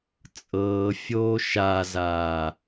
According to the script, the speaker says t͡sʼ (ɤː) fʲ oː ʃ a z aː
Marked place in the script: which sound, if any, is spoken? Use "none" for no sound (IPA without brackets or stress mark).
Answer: ɤː